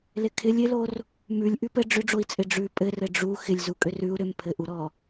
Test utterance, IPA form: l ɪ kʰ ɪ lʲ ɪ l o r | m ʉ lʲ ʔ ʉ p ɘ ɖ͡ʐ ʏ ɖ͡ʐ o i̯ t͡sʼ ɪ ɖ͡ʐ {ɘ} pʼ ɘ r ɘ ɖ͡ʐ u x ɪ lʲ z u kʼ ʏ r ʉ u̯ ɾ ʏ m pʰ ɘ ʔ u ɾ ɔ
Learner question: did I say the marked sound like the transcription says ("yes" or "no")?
no